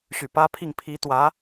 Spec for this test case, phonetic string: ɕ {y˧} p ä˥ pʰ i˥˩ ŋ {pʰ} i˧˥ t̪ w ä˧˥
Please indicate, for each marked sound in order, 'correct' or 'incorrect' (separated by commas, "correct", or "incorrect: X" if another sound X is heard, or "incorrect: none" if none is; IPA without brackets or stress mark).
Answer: incorrect: y˨˩, correct